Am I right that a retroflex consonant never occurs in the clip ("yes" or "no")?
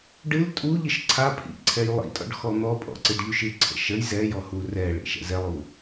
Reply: no